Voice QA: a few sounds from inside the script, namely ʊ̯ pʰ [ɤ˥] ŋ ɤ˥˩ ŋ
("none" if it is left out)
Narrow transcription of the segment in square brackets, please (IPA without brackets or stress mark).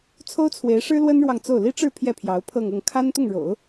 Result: ɤ˥˧